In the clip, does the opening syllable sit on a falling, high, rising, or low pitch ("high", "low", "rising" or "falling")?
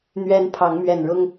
high